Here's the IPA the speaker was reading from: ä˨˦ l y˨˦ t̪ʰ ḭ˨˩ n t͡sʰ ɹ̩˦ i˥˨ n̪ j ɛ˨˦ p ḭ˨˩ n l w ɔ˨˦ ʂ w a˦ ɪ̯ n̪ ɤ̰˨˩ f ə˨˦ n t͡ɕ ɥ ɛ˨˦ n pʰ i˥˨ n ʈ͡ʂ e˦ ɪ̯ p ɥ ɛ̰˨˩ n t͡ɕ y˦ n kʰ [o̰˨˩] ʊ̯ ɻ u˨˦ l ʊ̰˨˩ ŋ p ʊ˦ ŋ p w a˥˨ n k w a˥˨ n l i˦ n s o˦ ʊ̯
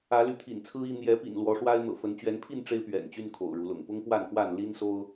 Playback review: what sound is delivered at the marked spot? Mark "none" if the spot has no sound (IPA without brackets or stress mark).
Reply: o̰˨˩